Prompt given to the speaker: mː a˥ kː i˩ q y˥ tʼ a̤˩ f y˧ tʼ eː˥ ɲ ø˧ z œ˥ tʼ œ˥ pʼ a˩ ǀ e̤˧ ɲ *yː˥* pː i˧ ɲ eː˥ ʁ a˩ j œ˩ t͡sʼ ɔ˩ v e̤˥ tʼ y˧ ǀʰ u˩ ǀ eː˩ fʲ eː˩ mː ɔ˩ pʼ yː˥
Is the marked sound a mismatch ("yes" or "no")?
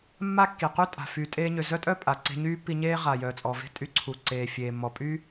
no